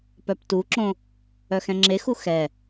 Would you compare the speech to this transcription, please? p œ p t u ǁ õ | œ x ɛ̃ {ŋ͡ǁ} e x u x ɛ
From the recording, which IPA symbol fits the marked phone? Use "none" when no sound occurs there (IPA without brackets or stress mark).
ŋ͡ǁ